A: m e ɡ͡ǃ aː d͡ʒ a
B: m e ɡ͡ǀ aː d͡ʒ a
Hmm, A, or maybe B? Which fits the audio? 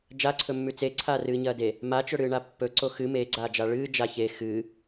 B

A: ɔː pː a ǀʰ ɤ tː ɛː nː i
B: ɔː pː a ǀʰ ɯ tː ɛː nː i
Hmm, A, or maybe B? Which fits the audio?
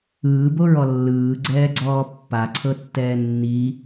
A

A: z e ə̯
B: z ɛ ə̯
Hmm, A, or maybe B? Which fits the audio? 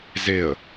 A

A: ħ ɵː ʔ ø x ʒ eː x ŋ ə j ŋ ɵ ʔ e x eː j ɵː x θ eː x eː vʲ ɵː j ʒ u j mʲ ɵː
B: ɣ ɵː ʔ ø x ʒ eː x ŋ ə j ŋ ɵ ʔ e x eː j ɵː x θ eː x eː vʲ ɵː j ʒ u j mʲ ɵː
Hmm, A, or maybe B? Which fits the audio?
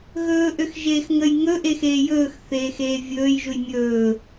B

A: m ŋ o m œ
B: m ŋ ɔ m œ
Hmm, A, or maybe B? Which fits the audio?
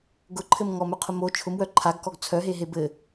B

